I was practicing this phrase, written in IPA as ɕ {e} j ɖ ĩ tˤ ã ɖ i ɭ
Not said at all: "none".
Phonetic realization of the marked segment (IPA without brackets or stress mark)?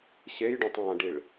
e